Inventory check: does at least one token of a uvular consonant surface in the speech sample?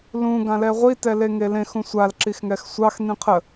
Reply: yes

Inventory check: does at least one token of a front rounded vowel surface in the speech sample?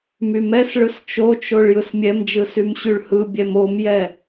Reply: yes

